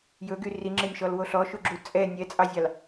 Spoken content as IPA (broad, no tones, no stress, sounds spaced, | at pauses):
j ɵ ɡ y r i ŋ͡ǁ e nʲ ʃ ɔ l w o ɬ ɔ ʃ u ɡ͡ǁ u t͡sʼ ɛ nʲ ɛ t͡sʼ ɑ zʲ ɑ l